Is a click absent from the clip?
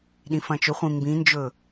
yes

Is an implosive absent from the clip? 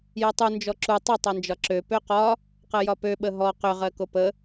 no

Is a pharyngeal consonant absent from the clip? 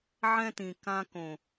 no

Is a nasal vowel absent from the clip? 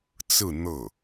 yes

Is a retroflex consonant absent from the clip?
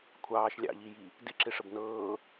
no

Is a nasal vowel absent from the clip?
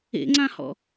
no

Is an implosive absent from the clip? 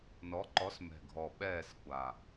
no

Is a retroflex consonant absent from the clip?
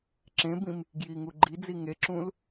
yes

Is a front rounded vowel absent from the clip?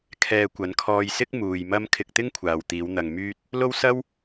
no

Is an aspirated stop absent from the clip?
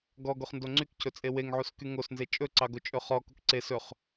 no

